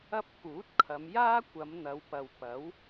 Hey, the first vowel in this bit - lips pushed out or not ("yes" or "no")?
no